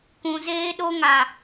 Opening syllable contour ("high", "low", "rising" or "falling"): low